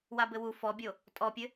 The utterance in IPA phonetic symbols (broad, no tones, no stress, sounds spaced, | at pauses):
w a b ɘ w u f ɔ bʲ o | tʼ ɔ pʲ ɘ